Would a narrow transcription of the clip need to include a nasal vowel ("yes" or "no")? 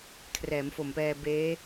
no